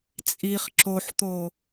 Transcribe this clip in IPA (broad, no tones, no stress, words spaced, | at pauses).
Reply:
t͡sʼiχ ǁoħt̪o